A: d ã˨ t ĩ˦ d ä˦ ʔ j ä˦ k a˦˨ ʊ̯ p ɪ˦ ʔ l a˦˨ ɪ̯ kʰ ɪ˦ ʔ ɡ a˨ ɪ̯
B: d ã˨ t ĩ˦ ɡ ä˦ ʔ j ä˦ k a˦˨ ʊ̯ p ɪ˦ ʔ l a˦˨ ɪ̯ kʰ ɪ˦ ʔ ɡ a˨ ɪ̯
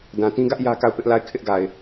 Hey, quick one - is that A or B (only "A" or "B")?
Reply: B